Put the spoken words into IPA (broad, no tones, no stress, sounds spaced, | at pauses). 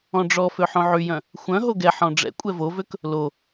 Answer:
ɔ̃ ɖ͡ʐ ɔ f ø ħ õ ʕ y j œ̃ | xʷ œ̃ ɦ o ɡ ɛ ħ ɔ̃ ɖ͡ʐ ɛ̰ kʷʼ ɛ v o v ø k | l o